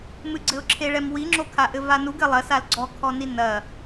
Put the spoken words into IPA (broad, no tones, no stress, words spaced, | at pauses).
mɨɡ͡ǀɘʊ̯ǁʰeɭɛm wiŋ͡ǁo kʰaʔɘvanuɡ ɘ lˠɐsal ɡ͡ǀɔkʰɔni nɐ